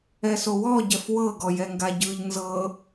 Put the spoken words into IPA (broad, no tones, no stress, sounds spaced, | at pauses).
ɛ s o w ɔ ɟ ɛ f w ɤ ɡ ɔ j ɛ ŋ ɡ a ɟ ɯ ʎ n z ɤ